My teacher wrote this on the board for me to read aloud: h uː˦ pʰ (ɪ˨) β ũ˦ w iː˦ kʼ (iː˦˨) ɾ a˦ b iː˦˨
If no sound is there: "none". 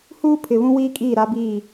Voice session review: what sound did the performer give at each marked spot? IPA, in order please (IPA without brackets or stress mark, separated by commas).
ɪ˨, iː˦˨